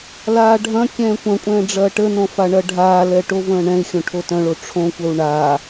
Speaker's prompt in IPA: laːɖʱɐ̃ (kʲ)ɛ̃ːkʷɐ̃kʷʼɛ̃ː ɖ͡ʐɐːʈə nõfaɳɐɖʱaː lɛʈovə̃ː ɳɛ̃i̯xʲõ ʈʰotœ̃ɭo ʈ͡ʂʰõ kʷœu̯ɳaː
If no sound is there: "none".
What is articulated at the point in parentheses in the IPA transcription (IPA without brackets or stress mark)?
kʲ